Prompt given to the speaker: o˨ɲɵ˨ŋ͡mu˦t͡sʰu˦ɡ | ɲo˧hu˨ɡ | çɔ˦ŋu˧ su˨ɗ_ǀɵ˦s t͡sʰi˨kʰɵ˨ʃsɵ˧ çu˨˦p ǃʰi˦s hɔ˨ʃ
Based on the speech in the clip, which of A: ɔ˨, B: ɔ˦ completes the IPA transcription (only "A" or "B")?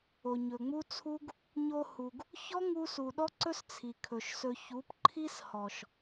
B